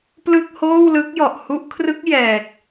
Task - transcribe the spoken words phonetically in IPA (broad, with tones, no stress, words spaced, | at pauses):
plɯ˥˩k̚hoː˥˩wlɯ˦˥k̚ jɔ˨˩ʔhu˦˥ʔkʰrɯ˦˥k̚ jɛː˨˩k̚